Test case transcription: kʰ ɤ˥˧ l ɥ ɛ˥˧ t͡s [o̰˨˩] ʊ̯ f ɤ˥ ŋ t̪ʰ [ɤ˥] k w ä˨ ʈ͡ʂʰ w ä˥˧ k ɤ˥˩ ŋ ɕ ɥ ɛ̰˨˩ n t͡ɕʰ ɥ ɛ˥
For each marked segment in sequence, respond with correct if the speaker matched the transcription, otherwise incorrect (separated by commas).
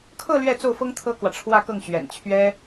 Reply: incorrect, correct